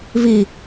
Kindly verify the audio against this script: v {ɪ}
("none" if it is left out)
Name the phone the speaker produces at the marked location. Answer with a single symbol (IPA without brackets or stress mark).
i